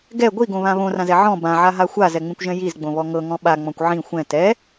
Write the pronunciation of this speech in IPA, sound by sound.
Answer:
ɡ ɛ ɡʷ i ɡ õ β ã β õ r ã z ɛ ʕ ɔ̃ b ã ʕ a ɦ a xʷ a z ɛ ŋ͡m ĩ kʷ ʒ ɛ̃ j i z ɡ͡b õ β ɔ ŋ ɤ ŋ ɔ̃ ɓ a ŋ͡m ɔ̃ kʷ ʕ ĩ xʷ ɛ̃ t ɛ

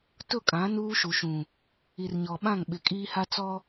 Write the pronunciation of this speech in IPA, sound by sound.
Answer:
t ʊ˦˨ kʼ ã˨˦ n uː˦ ʃ u˨ ʃ ũ˨ | i˨ r ɲ ɔ˨ ɓ ã˦˨ ŋ ɓ ɪ˨ kʼ iː˦ h a˦ t͡s ɔ˦

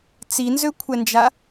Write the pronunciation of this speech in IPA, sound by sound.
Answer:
t͡s i n z ø kʷʰ ɛ n d͡ʒ a

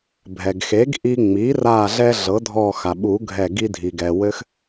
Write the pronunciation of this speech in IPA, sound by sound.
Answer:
bʱ ɛ˩ ɡ x e˩˥ ɡ ʔ i˧ ŋ͡m i˩˥ r a˧˩ ɮ ɛ˧ ɮ ɤ˩˥ dʱ ɔ˧˩ x a˩ ɓ u˨˩˦ ɡʱ ɛ˧˩ ɡ i˧ dʱ i˩ ɡ ɛ˩ w ɘ˧ x

